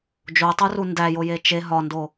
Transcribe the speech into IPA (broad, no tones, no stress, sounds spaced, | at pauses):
d͡ʒ o tˤ u r u n d æ j o j e t͡ʃ e ɦ ɒ n d o